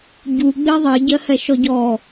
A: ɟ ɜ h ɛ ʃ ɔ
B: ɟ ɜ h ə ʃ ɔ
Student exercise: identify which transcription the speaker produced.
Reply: A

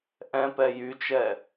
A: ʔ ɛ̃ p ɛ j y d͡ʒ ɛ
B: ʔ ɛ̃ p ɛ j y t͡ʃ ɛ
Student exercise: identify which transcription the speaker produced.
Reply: B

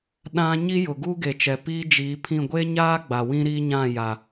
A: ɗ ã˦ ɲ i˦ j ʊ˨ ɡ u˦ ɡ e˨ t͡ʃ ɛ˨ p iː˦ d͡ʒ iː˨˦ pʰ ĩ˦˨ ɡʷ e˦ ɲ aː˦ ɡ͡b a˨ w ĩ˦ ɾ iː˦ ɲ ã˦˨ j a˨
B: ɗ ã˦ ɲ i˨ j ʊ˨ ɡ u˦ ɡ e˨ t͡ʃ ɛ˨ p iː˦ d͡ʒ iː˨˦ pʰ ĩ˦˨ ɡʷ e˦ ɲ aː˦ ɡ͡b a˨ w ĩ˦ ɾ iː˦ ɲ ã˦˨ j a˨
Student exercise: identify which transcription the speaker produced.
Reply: A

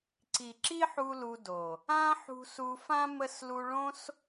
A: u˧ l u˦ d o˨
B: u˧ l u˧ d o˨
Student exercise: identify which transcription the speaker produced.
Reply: B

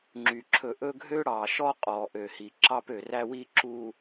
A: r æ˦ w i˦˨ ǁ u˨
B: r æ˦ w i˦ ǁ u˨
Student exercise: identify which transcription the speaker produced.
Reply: B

